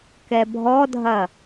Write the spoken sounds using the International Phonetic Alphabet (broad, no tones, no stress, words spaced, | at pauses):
kɛbʱɔdʱɐ